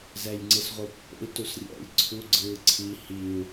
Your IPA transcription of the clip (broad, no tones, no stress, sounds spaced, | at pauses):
z ɛ j ŋ͡ǀ ɯ s ʁʷ ɯ pː o̰ i̯ t u s rʲ ɛ̰ j ǀʰ u ɡ͡ǀ ɯ ǀʰ i h i u̯